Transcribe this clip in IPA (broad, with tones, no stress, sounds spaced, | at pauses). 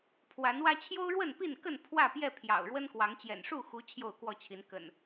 pʰ w a˨˦ n w ä˦ t͡ɕʰ j o˦ ʊ̯ ɻ w ə˥˨ n p i˥˨ n k ə˥˨ n pʰ w ä˥˨ p j ɛ˥˨ pʰ j ɑ̰˨˩ ʊ̯ ɻ w ə˦ n k w ɑ˨˦ ŋ t͡ɕ j ɛ̰˨˩ n ʂ u˥˨ x u˨˦ t͡ɕʰ j o˥˨ ʊ̯ k w ɔ˥˨ t͡ɕʰ i˨˦ n k ə̰˨˩ n